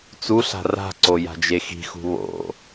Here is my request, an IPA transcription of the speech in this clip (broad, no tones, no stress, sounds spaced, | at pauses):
t͡s u ɬ a̤ r a̤ ǀ o j a̤ d͡ʒ e x i̤ x ṳ β o̰